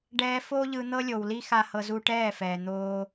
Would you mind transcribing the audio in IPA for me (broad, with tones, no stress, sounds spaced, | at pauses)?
ɖ ɛː˦ f oː˦ ʎ ɯ˧ n̪ ɤ˦ lʲ o˨ w l i˦ x a˦ h ɤ˧ z u˦ ʈ ɛː˦˨ f ɛː˨ n̪ oː˦